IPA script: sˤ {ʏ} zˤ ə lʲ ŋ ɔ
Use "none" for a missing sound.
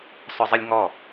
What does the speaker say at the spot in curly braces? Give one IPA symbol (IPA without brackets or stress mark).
ʏ